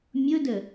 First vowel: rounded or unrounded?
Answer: rounded